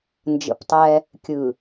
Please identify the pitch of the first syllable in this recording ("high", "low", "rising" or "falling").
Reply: low